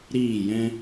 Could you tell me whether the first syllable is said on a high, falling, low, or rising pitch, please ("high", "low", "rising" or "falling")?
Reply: falling